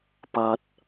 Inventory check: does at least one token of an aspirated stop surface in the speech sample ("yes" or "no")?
no